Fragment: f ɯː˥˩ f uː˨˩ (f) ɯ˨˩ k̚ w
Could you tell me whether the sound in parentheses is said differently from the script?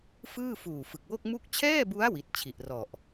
no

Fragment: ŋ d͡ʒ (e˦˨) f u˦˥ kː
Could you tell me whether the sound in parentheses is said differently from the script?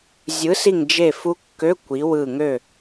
no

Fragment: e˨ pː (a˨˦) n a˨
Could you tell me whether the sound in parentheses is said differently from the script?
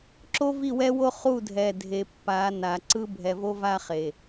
no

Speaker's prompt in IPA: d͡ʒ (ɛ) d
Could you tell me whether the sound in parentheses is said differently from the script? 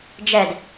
no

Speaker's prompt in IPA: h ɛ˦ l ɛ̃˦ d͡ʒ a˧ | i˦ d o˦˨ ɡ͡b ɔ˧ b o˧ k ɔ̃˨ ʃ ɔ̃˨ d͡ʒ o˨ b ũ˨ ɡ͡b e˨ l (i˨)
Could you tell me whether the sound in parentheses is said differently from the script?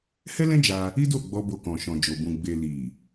no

